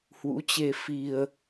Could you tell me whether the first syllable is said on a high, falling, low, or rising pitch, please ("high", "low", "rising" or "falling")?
rising